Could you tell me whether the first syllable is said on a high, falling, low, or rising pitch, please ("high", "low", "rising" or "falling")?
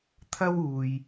high